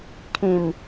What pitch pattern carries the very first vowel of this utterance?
low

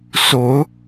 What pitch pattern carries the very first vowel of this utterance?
rising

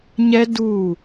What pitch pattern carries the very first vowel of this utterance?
high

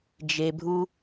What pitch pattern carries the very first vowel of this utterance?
low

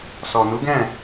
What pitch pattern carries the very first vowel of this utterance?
low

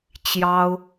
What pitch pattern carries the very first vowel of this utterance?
high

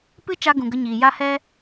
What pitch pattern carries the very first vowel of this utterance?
high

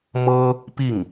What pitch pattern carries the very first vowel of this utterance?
high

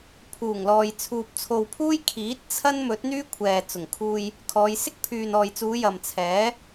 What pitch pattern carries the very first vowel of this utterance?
low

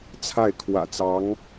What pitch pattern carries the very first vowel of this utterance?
falling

